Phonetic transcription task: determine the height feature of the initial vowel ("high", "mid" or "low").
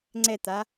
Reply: mid